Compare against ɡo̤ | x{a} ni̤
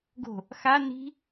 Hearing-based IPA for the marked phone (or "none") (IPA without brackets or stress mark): a